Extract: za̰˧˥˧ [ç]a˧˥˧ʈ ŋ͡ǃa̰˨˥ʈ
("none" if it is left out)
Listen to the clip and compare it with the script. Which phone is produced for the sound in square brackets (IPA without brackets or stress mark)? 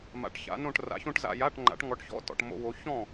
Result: j